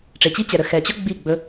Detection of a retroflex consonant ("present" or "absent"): present